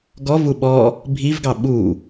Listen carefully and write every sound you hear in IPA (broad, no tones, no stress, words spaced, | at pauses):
ɡɔvu ɓɔ | bʱivɡɑ ɓu